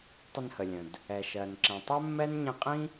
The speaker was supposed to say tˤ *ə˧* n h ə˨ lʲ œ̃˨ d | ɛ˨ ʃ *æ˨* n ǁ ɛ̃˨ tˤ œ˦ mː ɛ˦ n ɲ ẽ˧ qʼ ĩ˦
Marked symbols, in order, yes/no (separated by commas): yes, no